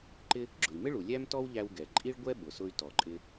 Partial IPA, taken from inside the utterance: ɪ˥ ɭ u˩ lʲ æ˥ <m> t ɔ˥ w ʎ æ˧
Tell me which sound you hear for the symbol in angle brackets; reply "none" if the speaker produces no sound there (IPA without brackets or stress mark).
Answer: m